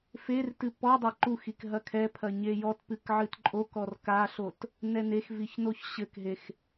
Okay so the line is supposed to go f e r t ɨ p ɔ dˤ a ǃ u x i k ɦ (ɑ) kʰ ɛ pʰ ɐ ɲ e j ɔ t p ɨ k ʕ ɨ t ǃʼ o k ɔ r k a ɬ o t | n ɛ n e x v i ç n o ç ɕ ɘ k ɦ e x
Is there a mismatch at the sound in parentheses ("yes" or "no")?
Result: yes